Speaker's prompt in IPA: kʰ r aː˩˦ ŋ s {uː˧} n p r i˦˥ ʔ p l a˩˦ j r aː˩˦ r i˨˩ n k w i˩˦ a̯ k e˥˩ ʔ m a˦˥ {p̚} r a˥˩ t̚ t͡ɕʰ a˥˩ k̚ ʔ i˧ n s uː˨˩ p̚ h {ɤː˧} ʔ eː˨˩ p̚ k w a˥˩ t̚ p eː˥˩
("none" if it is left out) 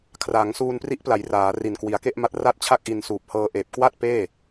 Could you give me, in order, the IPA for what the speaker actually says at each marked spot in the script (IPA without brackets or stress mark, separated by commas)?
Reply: uː˧, t̚, ɤː˧